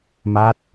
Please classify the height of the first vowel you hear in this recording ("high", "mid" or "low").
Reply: low